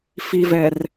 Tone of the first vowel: low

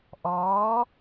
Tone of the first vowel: rising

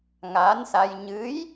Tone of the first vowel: rising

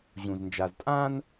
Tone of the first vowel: low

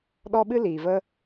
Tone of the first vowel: high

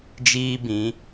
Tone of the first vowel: high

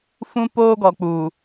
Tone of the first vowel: high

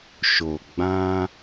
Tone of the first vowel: low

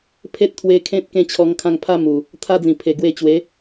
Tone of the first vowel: high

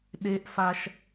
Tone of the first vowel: high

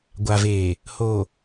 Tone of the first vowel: low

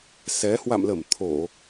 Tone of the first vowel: rising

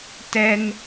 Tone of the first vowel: high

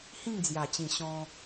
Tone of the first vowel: falling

